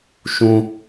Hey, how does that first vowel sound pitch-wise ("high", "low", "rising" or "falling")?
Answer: high